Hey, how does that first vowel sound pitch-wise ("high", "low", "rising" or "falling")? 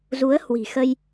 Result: rising